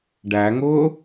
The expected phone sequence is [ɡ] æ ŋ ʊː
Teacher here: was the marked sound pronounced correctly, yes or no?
no